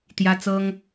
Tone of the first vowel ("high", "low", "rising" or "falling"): high